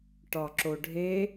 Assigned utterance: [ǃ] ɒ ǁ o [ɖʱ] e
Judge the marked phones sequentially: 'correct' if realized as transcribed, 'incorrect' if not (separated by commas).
incorrect, correct